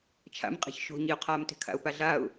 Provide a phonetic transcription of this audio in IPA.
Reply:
t͡ʃʰa̰mqʼe̤ç ʃo̤ɲiʊ̯qʰaːmte̤ kʰa̰ʊ̯paɮaʊ̯

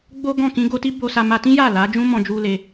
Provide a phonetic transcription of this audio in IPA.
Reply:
ɡ͡bo˦ ɡɔ̃˦˨ kĩ˧ɡo˧ ti˦bo˧sa˧ ma˧tĩ˦ja˦˨ la˨˦d͡ʒũ˦mɔ̃˧ d͡ʒu˦ le˧

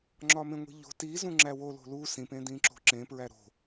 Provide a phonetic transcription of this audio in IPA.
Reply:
ŋ͡ǁɒmẽŋʷi̤ʎo̤ tizũŋ͡ǁæ wolo̤ lu sĩpẽ dĩǁo̤ǁẽ pɹæɾo̤

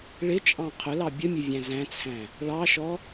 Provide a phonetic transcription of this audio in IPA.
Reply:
ɭɪt͡ʃʼɑ̃ qʰʊlɑ bʲəmʲʊvʲæ̃ zæ̃t͡sʰæ̃ | ɭɑʃɔ

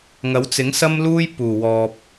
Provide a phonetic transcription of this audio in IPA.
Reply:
ŋɐ˨˥wt͡sɪ˨˥ŋ sɐ˥mluː˥j puː˨˩wɔː˨p̚

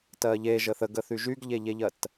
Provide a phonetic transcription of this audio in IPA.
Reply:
tɜʎe ʒəθəɡəθy ʒyɡʎeʎeʎɜt

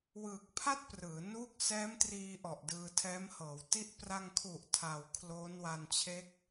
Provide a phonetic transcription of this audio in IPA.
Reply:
wɯː˨˩k̚pʰa˥˩t̚ prɯː˩˦nuː˥˩k̚ sɛː˦˥mtriː˧ ʔɔ˨˩ʔdɯː˧tʰɛː˦˥mhɤː˩˦w ti˦˥ʔ pra˧ŋkʰu˨˩ʔ tʰa˨˩wkʰloː˦˥n wa˧nt͡ɕʰe˦˥k̚

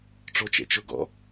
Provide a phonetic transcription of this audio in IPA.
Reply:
ʈ͡ʂot͡ʃḛt͡ʃʊ ɡɔ̰

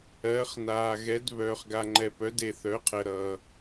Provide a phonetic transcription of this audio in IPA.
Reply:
ɜː˩˥χnaː˨ɣɛ˩˥d βœː˨χɡa˨ŋ͡ǃɛ˨ pœ˩˥de˨θœ˩˥qʰɜ˨ ɾʌː˨

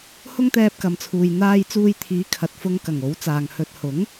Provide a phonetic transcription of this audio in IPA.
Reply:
hʊ˥ŋt̪ɛː˧p̚kɐ˨mt͡sʰuː˨j n̪aː˧jt͡suː˧jt̪ʰiː˨˥ kʰɐ˨t̚fʊ˧ŋkɐ˨˩ŋ o˨˥wt͡saː˨ŋhɵ˧t̚ hʊ˨˥ŋ

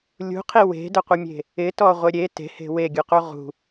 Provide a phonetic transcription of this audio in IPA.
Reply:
lʲṳqʰi we̤dəqʷəmʲe̤ | ɪtɔʁʷɪ ɾʲe te̤he̤ weɡʲuqu ʁṳ

